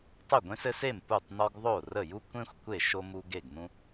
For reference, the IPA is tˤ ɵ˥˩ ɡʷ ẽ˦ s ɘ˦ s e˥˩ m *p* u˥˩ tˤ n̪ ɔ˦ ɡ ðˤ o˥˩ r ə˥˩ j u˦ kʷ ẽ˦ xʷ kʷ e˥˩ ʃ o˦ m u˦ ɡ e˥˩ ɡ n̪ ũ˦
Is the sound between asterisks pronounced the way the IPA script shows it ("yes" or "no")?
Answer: yes